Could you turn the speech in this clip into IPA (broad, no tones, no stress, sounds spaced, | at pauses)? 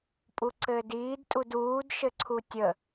pʼ u ǀ ɘː d iː d tʼ u d uː d ʃ ɘ ǀʰ u tʲ ə